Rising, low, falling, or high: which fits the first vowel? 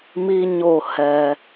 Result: high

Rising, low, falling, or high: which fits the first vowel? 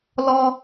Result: high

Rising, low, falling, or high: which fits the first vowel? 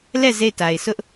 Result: falling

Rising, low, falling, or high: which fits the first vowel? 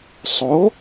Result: rising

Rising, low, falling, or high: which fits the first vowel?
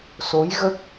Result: rising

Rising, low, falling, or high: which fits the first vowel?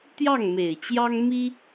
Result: falling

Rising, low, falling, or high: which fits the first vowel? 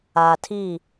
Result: low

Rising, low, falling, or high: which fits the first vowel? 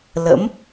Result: rising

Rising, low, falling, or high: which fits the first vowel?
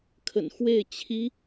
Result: low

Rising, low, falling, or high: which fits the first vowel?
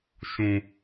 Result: low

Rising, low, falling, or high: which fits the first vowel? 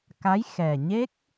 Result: rising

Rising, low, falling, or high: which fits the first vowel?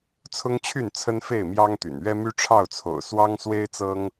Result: high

